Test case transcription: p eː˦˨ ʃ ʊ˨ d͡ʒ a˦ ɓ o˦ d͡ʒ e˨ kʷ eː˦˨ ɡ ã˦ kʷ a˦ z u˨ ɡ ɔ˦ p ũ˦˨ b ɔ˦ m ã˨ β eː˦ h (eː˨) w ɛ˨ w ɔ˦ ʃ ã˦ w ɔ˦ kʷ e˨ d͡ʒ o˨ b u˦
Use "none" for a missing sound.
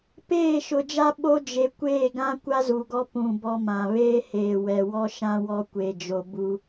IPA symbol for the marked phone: eː˨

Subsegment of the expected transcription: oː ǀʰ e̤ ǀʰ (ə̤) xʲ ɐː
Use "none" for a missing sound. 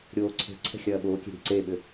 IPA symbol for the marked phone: ɛ̤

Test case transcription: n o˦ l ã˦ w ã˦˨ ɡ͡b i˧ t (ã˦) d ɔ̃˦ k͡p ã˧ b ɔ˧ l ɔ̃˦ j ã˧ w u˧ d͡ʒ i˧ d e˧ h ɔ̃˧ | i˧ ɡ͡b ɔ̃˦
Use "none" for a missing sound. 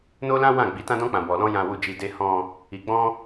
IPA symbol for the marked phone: ã˦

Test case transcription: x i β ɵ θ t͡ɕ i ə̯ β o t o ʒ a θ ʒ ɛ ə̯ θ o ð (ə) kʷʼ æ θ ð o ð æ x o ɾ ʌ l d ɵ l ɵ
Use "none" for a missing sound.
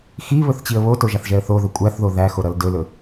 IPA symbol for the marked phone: ɵ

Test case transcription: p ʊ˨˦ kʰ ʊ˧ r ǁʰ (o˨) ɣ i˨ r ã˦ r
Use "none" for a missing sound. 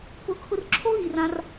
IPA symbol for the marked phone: o˦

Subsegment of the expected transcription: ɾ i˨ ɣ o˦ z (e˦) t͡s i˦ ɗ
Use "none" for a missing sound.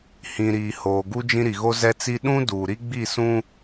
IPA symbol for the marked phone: ɛ˦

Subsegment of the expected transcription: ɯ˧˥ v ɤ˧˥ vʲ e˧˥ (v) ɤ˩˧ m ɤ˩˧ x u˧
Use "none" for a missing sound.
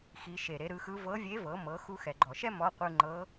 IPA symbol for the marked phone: v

